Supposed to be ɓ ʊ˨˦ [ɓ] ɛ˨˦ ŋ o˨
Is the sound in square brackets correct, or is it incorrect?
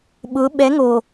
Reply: correct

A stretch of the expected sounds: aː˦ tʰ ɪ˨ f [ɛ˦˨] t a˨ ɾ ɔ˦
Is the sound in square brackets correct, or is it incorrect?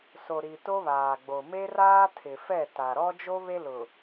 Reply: correct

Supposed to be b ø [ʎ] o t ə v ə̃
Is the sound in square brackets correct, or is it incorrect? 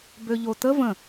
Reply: correct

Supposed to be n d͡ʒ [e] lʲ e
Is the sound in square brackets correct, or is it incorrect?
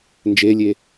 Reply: correct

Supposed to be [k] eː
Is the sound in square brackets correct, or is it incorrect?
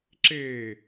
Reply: incorrect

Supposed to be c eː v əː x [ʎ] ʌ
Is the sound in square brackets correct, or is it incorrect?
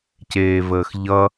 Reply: correct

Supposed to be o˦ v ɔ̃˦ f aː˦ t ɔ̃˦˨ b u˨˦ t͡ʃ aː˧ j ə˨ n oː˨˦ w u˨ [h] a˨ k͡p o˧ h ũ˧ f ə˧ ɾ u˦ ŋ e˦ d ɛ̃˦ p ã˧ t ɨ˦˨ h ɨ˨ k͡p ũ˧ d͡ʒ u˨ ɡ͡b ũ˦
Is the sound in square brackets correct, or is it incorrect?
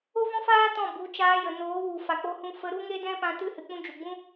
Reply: incorrect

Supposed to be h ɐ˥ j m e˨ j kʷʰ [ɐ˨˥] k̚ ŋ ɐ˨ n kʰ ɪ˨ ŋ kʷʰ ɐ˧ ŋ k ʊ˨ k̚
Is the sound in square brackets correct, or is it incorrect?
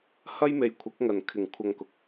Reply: correct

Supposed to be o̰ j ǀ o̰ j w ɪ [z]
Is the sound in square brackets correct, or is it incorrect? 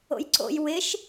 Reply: incorrect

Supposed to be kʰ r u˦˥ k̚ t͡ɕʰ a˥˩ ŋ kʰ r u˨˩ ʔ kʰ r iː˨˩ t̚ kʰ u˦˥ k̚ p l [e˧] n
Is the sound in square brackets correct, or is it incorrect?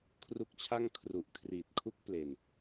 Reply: incorrect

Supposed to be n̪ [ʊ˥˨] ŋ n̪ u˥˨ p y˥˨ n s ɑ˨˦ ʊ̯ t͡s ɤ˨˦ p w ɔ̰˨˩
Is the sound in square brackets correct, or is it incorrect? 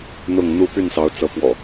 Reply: correct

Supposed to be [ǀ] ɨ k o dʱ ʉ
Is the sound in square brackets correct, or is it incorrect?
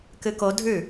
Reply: incorrect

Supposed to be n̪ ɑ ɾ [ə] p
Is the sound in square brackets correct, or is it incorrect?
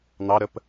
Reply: correct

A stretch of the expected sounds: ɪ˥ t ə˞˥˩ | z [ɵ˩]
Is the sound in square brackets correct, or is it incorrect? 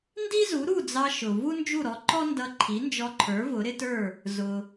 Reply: incorrect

